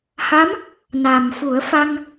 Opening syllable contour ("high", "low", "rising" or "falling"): rising